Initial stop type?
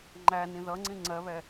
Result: click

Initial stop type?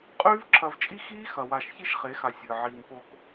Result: ejective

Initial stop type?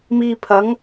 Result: aspirated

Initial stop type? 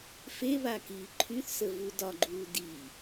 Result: plain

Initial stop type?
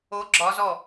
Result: click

